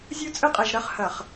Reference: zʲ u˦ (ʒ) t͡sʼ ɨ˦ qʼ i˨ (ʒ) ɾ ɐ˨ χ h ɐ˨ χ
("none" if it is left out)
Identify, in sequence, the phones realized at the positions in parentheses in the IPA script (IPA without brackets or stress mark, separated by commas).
none, ʒ